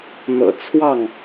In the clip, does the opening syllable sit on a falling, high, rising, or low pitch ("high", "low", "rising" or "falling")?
low